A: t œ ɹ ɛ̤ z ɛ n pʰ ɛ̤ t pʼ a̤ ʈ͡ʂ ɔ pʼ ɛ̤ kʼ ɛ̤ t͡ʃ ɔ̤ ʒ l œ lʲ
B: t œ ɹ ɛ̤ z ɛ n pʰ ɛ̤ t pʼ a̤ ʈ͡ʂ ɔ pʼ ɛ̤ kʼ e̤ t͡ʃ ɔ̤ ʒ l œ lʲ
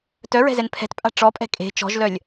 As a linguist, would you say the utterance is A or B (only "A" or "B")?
B